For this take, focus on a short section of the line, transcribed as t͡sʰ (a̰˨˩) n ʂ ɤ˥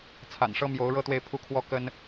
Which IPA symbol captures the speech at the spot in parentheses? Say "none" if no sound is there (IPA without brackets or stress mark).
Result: a̰˨˩